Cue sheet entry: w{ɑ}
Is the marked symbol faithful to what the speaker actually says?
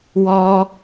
no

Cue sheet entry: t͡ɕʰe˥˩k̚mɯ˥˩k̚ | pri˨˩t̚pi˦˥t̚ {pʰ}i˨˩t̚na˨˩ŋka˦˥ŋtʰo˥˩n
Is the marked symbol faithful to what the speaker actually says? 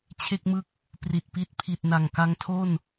yes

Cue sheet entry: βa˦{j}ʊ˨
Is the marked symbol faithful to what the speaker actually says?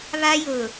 yes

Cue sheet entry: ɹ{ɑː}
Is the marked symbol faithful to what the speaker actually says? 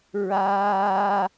no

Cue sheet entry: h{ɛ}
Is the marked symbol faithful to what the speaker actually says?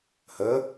no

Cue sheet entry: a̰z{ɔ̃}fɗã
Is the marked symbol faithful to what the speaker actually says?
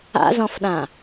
yes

